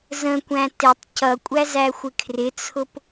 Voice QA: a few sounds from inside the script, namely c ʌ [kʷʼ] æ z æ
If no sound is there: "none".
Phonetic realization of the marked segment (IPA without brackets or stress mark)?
kʷʼ